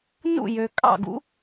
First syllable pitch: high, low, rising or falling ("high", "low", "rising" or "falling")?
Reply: falling